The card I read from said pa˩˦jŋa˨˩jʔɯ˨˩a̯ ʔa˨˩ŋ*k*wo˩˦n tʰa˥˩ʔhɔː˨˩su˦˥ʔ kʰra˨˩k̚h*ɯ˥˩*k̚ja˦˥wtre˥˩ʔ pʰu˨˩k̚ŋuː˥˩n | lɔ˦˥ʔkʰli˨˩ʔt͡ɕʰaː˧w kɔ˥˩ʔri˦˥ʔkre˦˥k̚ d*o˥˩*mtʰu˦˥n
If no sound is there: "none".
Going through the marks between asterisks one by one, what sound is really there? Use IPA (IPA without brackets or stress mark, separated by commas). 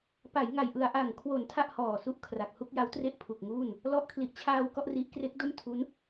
kʰ, u˥˩, o˥˩